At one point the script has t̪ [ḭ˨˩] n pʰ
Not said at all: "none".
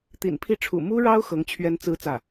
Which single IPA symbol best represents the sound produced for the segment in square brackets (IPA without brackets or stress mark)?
ḭ˨˩